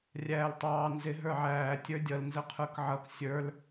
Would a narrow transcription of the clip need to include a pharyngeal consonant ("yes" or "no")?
yes